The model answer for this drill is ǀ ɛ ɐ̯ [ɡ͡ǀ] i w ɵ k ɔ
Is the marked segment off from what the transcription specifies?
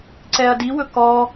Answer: yes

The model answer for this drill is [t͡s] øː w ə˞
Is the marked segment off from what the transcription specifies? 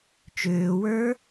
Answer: yes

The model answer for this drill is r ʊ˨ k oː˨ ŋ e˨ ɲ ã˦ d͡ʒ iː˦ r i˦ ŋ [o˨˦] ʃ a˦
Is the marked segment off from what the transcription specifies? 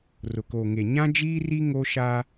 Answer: yes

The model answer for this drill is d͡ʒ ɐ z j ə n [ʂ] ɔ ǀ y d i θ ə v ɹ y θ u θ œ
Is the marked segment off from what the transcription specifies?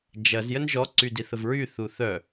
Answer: yes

